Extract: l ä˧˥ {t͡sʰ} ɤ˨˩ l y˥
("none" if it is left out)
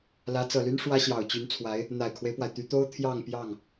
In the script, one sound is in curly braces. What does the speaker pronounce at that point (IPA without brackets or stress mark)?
t͡s